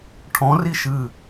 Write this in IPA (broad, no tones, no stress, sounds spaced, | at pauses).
ʈʰ ɔ̃ r i ʃ ɨ